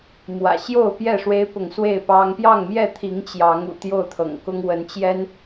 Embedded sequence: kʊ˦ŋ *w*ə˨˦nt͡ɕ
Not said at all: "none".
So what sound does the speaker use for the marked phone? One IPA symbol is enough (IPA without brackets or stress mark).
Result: w